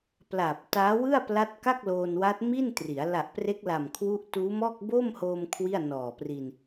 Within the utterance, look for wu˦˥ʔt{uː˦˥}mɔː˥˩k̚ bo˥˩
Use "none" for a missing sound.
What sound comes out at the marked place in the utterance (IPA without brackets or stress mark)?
uː˦˥